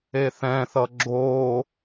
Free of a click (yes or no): no